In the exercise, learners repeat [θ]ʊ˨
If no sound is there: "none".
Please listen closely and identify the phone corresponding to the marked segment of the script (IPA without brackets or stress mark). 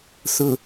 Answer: θ